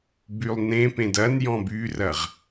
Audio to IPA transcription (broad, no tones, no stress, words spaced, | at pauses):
bylˠnẽpẽd ɐn jɔ̃byrɐʁ